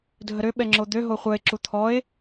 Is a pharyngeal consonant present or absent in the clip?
absent